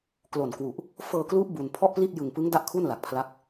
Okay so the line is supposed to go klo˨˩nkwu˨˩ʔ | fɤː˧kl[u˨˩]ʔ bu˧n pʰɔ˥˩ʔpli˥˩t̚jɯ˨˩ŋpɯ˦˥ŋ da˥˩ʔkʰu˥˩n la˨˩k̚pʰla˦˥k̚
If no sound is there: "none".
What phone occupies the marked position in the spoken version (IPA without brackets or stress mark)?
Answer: u˦˥